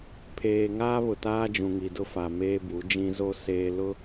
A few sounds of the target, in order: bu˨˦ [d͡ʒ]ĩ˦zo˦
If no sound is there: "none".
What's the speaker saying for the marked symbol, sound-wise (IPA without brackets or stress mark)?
d͡ʒ